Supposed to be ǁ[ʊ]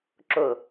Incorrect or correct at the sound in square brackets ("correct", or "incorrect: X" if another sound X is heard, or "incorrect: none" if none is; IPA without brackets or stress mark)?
correct